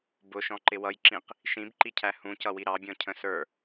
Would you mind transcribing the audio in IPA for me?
b ʊ ʃ ɔ̃ ǃ ɪ w ʌ j ǁ ĩ q | ʃ ĩ b ǃ i cʰ æ h ũ c ʌ w i ɾ ɑ bʲ ɔ̃ cʰ ə̃ s ə˞

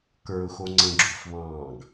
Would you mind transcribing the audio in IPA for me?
k ə˞ ʊ̯ x o ŋ͡ǀ ə̃ ɡ͡ǁ u f β ɑ̃ː ɡ

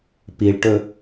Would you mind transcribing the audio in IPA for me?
p i ɭ ʈ ɵ

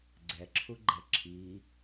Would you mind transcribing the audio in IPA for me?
ɡ͡ǀ ɛ ǁʰ u ɡ͡ǃ ɛ ǁʰ i

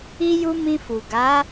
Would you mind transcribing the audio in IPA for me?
i˧ j u˧ m ĩ˧ f u˨ ɡ a˨˦

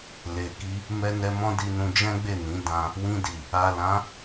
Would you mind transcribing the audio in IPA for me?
l e˨ k i˧ | m ɛ˧ n ɛ˧ m ɔ̃˦ d i˧ n ũ˧ d͡ʒ ɛ̃˦ ɡ͡b e˦˨ n ĩ˨˦ d ã˧ | w ĩ˧ d i˨ | a˨ l ã˨˦

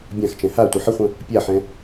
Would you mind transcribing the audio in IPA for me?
bʲ ã x t͡ʃ ɛ̃ h a tʷ ɘ ħ ə χʷ ə̃ | pʲ a ħ ɛ̃

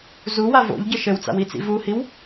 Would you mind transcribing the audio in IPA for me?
z u w a v o̰ ʎ ɟ ɘ ʃ ɘ w t͡s a̰ w i t͡s ḭ v u h i w

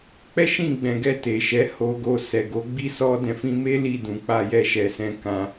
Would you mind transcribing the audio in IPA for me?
k͡p ɛ˦ ʃ ĩ˦˨ ɡ͡b ɛ̃˨ ɡ ɛ˧ t e˨ ʃ ɛ˨˦ h o˧ ɡ o˧ s ɛ˨ ɡ o˨˦ ɡ͡b i˦ s ɔ˧ d ɛ̃˨ f ĩ˧ m e˦ l i˦˨ d ũ˨ k͡p a˧ j ɛ˧ ʃ ɛ˨ s ɛ̃˧ k ã˧

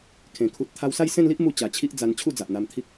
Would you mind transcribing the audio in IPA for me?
kʰ ẽ˨˩ kʰ u˨ t̚ t̪ʰ a˧ w s a˥˧ j s ẽ˥˧ n l i˦ ʔ m u˧ t͡ɕ a˨˩ t͡ɕʰ i˦ ʔ d͡z a˧ n t͡ɕʰ u˥˧ d͡z a˨ ʔ n̪ a˧ m t̪ʰ i˦ k̚

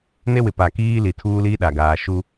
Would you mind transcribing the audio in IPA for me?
n e˦ w ɪ˨ p a˨ k iː˦ l i˨ tʰ uː˦ l iː˦ ɗ a˨ ɡ aː˨ ʃ u˦

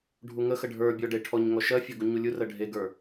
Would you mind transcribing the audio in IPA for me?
ɖʱ u ŋ ə x ə ɖʱ ə˞ bʲ ɔ ɖ e ʈʰ ɔ ɲ ŋ ɔ ʃ ɜ fʲ ɔ ɡ u ɲ u lʲ u r ɜ ɖʱ e ɡ ə˞

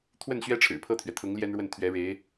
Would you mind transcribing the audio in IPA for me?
t̪ʰ w ə˥˩ n ɕ ɥ ɛ˥ ʈ͡ʂʰ ɻ̩˨˩ pʰ ɤ˥˩ t̪ʰ ɥ ɛ˩ t̪ʰ ʊ˧˥ ŋ l j ɛ˥ n ɻ w ə˥˩ n t̪ʰ ɥ ɛ˧˥ ɻ e˧˥ ɪ̯

